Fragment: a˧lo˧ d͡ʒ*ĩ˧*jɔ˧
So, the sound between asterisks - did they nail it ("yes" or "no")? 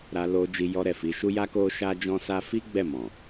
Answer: no